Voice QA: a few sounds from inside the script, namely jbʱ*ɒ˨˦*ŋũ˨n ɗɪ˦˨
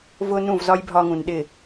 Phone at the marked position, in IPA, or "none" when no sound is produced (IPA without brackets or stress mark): ɒ˧